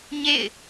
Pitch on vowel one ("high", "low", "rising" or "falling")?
falling